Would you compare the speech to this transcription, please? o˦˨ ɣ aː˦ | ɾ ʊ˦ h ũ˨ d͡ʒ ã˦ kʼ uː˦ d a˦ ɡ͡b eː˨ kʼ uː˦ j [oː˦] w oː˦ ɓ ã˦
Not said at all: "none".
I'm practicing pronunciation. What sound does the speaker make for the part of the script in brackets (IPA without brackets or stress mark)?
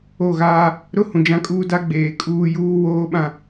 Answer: uː˦